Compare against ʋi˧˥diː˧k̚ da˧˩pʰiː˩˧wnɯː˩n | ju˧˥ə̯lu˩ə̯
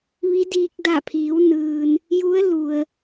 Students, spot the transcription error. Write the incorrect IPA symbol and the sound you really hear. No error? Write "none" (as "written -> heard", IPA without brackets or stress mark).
none